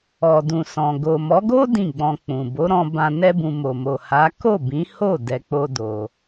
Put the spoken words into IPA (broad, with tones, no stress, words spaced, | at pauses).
ɔ˨dũ˨sɔ̃˨ ɡo˨mɔ˨˦ɡo˦ dĩ˦˨ɡ͡bɔ̃˧k͡pũ˨ bo˨˦ɾɔ̃˧bã˧ nɛ˦bũ˧ mo˨mo˨ha˨˦ ko˦˨bĩ˨˦ho˦˨ dɛ˧k͡po˦ do˧